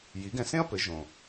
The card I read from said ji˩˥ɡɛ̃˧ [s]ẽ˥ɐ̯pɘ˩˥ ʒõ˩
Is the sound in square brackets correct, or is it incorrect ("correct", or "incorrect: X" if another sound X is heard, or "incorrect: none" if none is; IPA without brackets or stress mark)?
correct